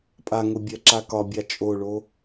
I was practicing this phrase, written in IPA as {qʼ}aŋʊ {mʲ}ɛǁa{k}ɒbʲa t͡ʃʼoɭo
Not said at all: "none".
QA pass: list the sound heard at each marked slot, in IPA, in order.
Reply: pʼ, bʲ, k

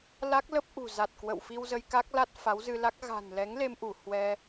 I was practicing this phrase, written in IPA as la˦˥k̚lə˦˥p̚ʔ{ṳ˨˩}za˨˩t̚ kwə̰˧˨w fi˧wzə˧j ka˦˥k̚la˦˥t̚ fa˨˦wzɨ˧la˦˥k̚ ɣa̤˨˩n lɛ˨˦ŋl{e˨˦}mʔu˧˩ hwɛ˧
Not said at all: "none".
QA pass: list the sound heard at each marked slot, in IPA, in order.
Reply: ṳ˨˩, e˧

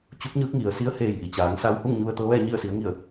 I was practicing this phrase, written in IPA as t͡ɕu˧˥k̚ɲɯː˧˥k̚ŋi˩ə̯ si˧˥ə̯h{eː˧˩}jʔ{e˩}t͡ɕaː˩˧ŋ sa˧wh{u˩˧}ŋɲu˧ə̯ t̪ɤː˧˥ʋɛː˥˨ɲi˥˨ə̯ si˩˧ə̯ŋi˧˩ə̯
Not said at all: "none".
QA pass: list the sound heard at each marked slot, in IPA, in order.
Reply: eː˧˩, i˩, u˥˨

